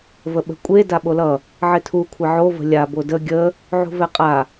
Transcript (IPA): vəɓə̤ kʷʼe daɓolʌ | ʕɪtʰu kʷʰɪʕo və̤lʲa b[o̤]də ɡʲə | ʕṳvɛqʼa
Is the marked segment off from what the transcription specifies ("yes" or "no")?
yes